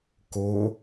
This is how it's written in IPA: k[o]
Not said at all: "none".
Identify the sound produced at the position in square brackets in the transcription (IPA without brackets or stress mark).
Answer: o